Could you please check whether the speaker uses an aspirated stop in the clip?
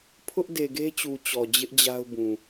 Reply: yes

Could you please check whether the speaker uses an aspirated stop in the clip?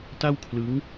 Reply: yes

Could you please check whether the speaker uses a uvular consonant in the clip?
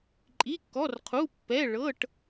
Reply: yes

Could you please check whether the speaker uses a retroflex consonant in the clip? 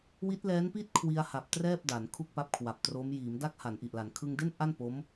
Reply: no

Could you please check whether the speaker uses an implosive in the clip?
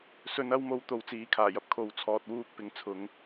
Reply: no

